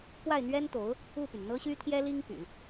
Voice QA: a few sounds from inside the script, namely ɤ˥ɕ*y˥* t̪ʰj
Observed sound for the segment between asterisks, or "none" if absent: y˥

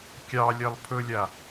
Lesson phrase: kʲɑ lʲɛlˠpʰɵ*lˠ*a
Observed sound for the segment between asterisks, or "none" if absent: lʲ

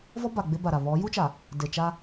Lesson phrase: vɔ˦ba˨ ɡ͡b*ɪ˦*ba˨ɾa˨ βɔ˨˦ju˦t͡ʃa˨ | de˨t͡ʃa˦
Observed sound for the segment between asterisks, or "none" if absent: ɪ˦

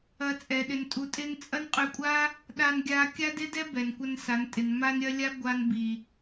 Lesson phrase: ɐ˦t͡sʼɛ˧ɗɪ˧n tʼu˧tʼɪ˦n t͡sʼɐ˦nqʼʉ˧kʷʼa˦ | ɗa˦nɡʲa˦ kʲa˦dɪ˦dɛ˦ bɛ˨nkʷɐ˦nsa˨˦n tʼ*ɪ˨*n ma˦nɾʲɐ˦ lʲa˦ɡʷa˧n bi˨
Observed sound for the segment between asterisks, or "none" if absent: ɪ˨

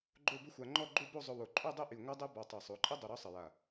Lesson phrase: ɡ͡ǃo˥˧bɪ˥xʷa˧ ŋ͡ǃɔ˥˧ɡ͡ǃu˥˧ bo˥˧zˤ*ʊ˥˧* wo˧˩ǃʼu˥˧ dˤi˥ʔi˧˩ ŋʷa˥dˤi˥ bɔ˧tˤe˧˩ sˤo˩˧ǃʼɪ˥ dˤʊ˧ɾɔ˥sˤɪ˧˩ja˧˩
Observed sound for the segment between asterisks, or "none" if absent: ʊ˧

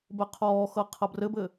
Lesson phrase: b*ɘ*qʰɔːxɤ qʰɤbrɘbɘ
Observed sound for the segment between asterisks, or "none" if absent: ɘ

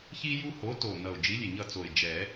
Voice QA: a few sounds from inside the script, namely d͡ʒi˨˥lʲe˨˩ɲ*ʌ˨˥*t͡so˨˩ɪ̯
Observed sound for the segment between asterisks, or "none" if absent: ʌ˦˨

